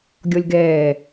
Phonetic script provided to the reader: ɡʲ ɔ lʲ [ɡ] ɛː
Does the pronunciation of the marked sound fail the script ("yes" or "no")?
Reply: no